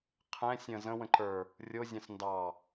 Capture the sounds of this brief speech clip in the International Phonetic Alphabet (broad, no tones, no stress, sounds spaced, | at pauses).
qʰ ɛ̃ sʲ ə̃ z ə̃ w ə̃ ǃ ə˞ | rʲ o zʲ ɑ̃ s n d ɑ